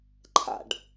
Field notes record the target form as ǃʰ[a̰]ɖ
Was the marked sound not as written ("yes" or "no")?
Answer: no